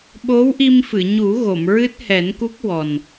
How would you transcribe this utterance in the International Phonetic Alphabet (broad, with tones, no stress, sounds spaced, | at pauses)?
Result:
ɓ o˧˥ w ʔ i˧ m f ɨ˨˩˨ ɲ u˨˩˦ ɣ o˨˩˨ m ɹ ɨ˦˥ t̚ h ɛ˨˩˦ n k u˦˥ k̚ w ɔ˨˩ n